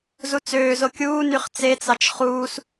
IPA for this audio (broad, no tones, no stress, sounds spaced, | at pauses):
z u t͡s øː z o kʲ uː n y χ t͡s e t͡s ɑ t͡ʃ χ uː s